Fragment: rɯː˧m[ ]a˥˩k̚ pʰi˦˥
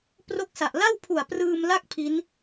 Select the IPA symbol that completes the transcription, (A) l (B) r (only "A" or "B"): A